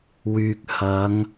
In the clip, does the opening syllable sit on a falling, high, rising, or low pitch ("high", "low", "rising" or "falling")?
low